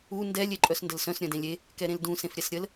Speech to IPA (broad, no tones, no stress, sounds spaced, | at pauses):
u n d ɛ lʲ e ǃʼ œ s n d ə l s œ̃ s ɾʲ œ̃ d ẽ lʲ e | k ɛ ɾ ẽ l d ũ s ẽ f ɾʲ ɛ s ɾʲ ə l